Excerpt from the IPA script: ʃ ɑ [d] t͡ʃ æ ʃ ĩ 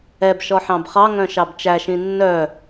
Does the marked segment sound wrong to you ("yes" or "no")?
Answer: yes